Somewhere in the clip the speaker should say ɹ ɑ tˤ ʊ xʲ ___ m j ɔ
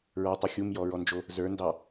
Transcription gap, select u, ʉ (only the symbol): u